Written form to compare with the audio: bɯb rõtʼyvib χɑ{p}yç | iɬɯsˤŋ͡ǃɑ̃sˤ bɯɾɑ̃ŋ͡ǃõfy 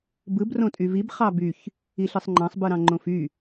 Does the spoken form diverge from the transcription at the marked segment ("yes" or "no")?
yes